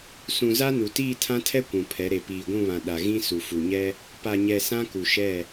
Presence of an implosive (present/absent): present